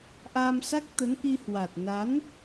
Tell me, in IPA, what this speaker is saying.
ʔ aː˧ m s a˦˥ k̚ t̪ ə˨˦ n ʔ i˧ h w a˨˩ t̚ n a˨˦ n

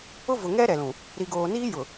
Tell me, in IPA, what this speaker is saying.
ʊ˦ v ʊ˨ ŋ ɛ˦ ɾ ɛ˨ l ũ˨ | ɾ i˨ ɡ oː˨ n iː˦ j ʊ˨

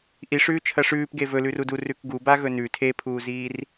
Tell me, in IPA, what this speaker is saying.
ʔ i ʂ ʉː t͡ʃʰ ɐ ʂ ʉː p ɡ e v ɵ l ʉ r u d u r ʉ k ɡ u b a ɣ ɵ n ʉ tʰ e pʰ uː z iː r

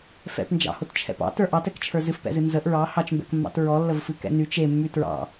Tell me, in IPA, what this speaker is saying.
f ɛ̰ p n d͡ʒ ɑ̰ h o t t͡ʃʰ ɛ̰ p ɑ̰ t ə˞ ʔ ɑ t ɛ k t͡ʃʰ ə˞ z ɨ f p ɛ̰ z ɨ n z ə ʔ ɹ ɑ h ɑ t͡ʃ m b ɛ̰ k mː ɑ̰ t ɹ ɔ lː ə v f ɨ k ɛ̰ n y t͡ʃ e mː y t ɹ ɑ̰

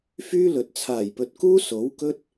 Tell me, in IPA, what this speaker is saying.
f yː˥ l ɵ˨ t̚ t͡sʰ aː˨˩ j p ɵ˨ t̚ k uː˥ s o˨˥ w k ɵ˥ t̚

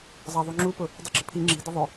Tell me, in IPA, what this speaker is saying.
zˤ ɑ ðˤ u ŋ͡ǁ u p ʊ | dˤ ɯ ɡ͡ǁ ʊ pʰ i ŋ͡ǁ i̤ d ə ðˤ ʊ

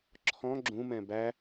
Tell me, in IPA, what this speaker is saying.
ǁʰ ɔ̃ ɡ͡ǁ ũ m ɛ̃ b æ

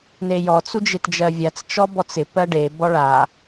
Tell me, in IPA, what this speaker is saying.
n e j ɔ t͡s u d͡ʒ e t d͡ʒ ɜ vʲ a t͡s t͡ʃ ɔ b ɔ t͡s ɪ p ɜ ɖ e b ɔ ɭ a

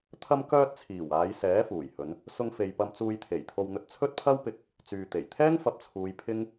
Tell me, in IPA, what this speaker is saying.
t̪ʰ ɐ˧ m k œː˧ t̚ t͡sʰ iː˨˩ w aː˨˧ j s ɛː˨˥ f uː˨˩ j h ɵ˨˧ n | s ʊ˧ ŋ f e˨ j p ɐ˧ m t͡s uː˧ j t̪ʰ e˨˩ j t̪ʰ o˧ w n̪ ɵ˧ t̚ t͡sʰ ɵ˥ t̚ pʰ ɐ˥ w p ɪ˧ k̚ | t͡s yː˨ t̪ e˨˩ j t̪ʰ ɛː˥ ŋ f ɐ˨˥ p̚ t͡sʰ uː˨˧ j pʰ ɪ˥ ŋ

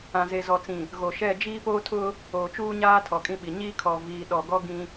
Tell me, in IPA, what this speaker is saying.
ã˨ z e˨ z ɔ˨ t͡s ĩ˨ | ɣ o˨ ʃ ɛ˦˨ d͡ʒ iː˦ p oː˦ tʰ ʊ˦ | oː˨ t͡ʃ uː˦ ɲ aː˦ tʰ ɔ˨ kʼ ĩ˦ ɓ i˨ ɲ iː˦ kʰ ɔ˨ v iː˨ ɗ ɔ˨ ɡ ɔ˦ ɡ ĩ˦

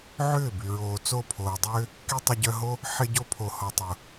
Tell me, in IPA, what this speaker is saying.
ʕ ʏː˦˨ b y˨ ɹ oː˨ t͡s o˦˨ pʰ oː˨ dˤ ʏː˦ | k i˦ tˤ ʏ˧ ɟ œ˧ ɦ o˦ | ħ ɪ˧ ɟ o˧ pʰ o˨ h ɔ˨ tˤ ʊ˨

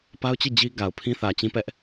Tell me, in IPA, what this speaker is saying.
p a˦ ʊ̯ t͡ɕ i˦˨ d͡ʑ i˦ ɡ a˨ ʊ̯ pʰ ĩ˦ θ ä˨ t͡ɕ ĩ˦ p ɛ˦ ʔ

